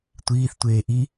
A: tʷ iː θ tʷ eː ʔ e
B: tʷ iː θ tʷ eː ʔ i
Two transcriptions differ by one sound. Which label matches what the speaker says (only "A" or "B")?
B